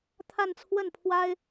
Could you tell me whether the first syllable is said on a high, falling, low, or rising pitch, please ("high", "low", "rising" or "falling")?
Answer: falling